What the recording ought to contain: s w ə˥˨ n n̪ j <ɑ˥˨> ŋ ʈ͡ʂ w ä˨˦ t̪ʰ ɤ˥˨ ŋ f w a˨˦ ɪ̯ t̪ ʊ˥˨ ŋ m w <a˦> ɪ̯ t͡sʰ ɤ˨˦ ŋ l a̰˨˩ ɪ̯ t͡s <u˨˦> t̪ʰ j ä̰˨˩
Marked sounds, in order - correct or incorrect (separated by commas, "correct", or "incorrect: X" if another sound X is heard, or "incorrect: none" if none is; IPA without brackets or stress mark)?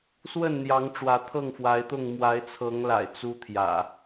incorrect: ɑ˨˦, incorrect: a˨˦, incorrect: u˦